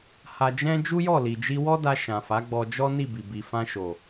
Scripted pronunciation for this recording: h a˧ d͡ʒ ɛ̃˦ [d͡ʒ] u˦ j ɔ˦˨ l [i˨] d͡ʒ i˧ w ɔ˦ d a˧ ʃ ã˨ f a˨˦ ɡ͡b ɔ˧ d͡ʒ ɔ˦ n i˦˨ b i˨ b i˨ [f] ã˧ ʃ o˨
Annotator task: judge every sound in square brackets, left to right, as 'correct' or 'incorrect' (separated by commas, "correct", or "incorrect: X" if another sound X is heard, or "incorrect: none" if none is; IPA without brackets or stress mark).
correct, correct, correct